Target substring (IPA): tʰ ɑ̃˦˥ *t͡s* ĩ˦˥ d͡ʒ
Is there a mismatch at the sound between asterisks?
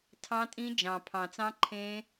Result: yes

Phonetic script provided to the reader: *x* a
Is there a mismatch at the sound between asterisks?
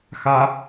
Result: no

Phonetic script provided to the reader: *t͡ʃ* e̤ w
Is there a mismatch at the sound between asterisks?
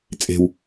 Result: yes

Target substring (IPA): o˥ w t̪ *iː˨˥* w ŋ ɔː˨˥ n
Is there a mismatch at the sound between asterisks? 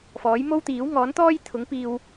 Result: no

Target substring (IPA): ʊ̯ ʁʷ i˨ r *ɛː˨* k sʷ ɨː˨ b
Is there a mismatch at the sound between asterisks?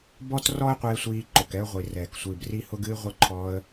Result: no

